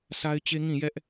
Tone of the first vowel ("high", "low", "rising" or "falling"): high